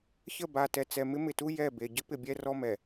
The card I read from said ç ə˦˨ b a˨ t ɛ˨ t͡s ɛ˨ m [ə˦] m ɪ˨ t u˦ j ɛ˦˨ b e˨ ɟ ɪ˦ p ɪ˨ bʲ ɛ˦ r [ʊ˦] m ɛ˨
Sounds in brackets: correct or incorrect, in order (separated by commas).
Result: incorrect, incorrect